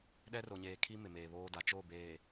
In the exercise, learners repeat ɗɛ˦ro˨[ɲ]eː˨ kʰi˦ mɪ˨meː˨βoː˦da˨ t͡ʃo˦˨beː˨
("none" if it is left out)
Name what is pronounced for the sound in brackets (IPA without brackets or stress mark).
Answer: ɲ